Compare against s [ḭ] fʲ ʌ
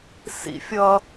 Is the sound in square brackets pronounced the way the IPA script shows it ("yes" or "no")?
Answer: yes